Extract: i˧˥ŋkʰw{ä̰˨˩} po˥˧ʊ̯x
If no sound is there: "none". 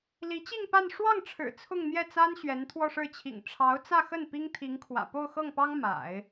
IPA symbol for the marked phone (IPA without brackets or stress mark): ä̰˨˩